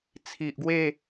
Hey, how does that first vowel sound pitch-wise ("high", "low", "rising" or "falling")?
low